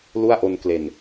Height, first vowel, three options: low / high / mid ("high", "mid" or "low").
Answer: high